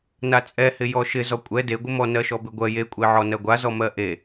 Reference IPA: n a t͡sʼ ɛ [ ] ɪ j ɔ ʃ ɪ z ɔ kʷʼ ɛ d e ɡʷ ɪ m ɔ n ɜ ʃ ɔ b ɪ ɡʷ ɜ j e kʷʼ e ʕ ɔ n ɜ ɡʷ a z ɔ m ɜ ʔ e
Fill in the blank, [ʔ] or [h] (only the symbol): h